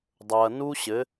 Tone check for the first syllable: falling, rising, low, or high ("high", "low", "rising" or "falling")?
low